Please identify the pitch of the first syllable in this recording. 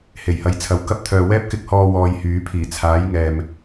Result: low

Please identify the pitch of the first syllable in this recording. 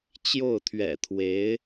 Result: falling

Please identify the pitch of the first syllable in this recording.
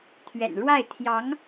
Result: low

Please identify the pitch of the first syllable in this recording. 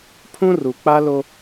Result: high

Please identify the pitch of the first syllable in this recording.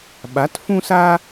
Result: rising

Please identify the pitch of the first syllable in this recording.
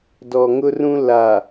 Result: low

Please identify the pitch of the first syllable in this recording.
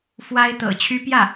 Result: high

